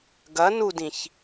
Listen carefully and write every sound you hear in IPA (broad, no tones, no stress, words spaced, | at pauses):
ɡɐ nudĩç